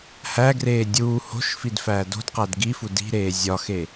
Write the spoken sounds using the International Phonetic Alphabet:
hæɡreː dʲuː ho̤ʃfid fæːdo̤dqæd ɡifu di̤ɾeː zʲɒxe

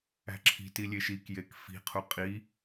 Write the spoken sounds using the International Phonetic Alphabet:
æ̤ǁʰi̤ti lʲeʃikjek fi̤qʰu qʼi

